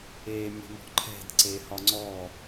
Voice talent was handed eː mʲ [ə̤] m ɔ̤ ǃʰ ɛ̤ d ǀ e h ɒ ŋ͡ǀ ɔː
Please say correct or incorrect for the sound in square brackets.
correct